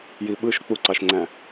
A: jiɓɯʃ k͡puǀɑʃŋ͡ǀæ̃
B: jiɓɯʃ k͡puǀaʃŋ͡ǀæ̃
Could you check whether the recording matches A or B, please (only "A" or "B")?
A